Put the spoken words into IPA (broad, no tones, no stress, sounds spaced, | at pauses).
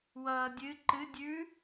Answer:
w ʌː dʲ ɨ ǃ ɨ dʲ ʉ